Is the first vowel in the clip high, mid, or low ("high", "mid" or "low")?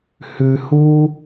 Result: high